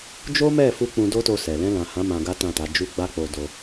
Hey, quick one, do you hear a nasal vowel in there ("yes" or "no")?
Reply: yes